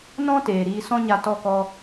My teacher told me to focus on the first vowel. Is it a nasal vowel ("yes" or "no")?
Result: yes